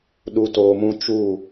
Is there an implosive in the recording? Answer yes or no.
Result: yes